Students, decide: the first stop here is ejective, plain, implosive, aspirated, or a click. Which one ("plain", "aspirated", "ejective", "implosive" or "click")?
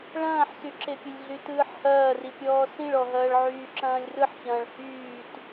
click